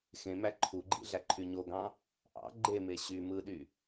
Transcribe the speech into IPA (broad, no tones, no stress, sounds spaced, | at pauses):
x ẽ m æ ǃʰ u ɡ͡ǃ ḭ ɮ æ ǃʰ y ɲ o ɡ ɑ̃ | ʔ ɑ̰ ɡ͡ǃ e m e ɕ y m ɯ ɗ y